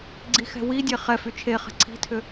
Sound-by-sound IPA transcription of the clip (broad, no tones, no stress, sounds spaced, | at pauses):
ɡ͡ǀ i x ɛ̤ w i dʲ e χ ɛ f y t͡ʃʰ e χ ɛ̤ ǀʰ i̤ tʰ ʏ